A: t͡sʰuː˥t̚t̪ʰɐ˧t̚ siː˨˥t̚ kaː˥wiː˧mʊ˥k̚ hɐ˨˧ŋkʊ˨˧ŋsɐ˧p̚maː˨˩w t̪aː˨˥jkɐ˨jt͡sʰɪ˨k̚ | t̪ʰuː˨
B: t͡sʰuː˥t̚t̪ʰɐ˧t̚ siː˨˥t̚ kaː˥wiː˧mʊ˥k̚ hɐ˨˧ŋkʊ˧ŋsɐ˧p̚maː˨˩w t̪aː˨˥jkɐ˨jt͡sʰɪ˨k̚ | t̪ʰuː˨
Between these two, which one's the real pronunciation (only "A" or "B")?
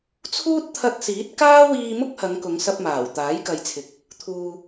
A